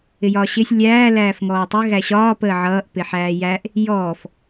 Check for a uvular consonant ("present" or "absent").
absent